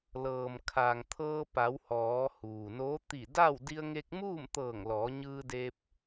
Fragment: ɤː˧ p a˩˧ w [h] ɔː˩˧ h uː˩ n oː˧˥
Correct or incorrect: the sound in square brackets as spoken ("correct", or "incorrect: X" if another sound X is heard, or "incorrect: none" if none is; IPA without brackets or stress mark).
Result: correct